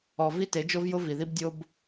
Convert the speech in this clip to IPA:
ɔ˨ v i˦ t e˨˦ d͡ʒ o˦ v j ʊ˦ v i˨ ð i˦ b dʲ o˦ b

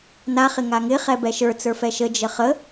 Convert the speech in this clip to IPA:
n a χ ɪ ŋ a ŋ ɪ χ ɛ b ɛ ʃ ə˞ t͡s ə˞ f ɛ ʃ ə d͡ʒ ə χ ə

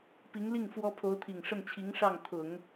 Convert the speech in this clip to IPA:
p i˧˥ ŋ l i˥˩ ŋ f w ɔ˥ pʰ o˧˥ ʊ̯ t̪ʰ i˨˩ ŋ ʂ ə˥˩ n t͡ɕʰ i˧˥ ŋ ʂ ɑ˥˩ ŋ t̪ʰ ʊ˨˩˦ ŋ

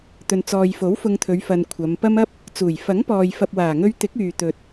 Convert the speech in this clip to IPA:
t̪ ɵ˨ n t͡s ɔː˨ j f o˨˥ w f ʊ˧ ŋ t̪ʰ ɵ˨˧ ɥ f ɐ˨ n kʷʰ ɐ˨˧ m p ɐ˧ m ɐ˥ p̚ | t͡s uː˨˩ j f ɐ˨˥ ŋ p ɔː˨ j f ɐ˨ p̚ w aː˨˩ ŋ ɵ˧ ɥ t̪ ɪ˨˥ k̚ yː˨ t̪ ɵ˨ t̚

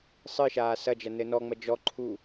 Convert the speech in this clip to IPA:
sˤ ɨ ʃ aː s ɐ d͡ʒ ɐ n ɘ n ɔ ŋ͡m ɐ d͡ʒ ɔ ǃʰ u

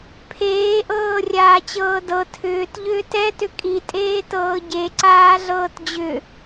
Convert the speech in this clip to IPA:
pʰ eː ʔ ɤː rʲ aː t͡ɕ ɤː d ɤ tʰ ʏː t ʎ ʏː t ɛ t ʏ kʼ i tʼ eː t ɤː ɟ e ǀ aː ɮ ɤː t d͡ʑ ʏ

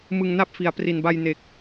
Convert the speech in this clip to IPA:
m ɯ˧ ŋ n a˥˩ p̚ f i˩˦ a̯ p r i˨˩ n b a˧ j n e˨˩ k̚

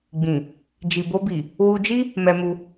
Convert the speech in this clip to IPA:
ɡ͡b ĩ˨ | d͡ʒ i˨ b o˧ b i˨ | w u˧ d͡ʒ i˦ | m ɛ˧ m u˧

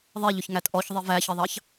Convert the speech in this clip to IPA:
ðˤ ɛ ʎ ʊ ç ŋ æ t ʔ ɔ ç ðˤ i v æ ç ə ðˤ ɑ ç

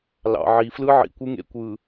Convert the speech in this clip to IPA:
l ɑ̰˨ ʕ i˨ f l ɯ˦ ʕ ḭ˨ kʷ ɯ˦ ŋ ḛ˨ kʷ ɯ˨

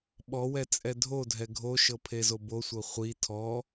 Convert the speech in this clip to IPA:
ɓ ɔ w ɛ t͡sʼ ɛ dʱ o dʱ ɛ ɡʱ o ʃ ɤ pʰ e z o b o sʷ ɤ χʷ i tʰ ɔ

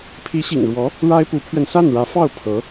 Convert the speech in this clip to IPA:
pʰ i˧˥ ɕ ḭ˨˩ ŋ ɻ w ɔ˧˥ | ɻ a˥ ɪ̯ p u˧˥ pʰ ɥ ɛ˧ n s a˥˩ n ɻ ä˧˥ f ɑ˥˩ ʊ̯ pʰ ɤ˧˥

